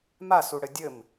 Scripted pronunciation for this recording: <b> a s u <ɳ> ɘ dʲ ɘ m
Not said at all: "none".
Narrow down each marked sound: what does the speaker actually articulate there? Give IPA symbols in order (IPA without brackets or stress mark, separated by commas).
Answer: m, ɽ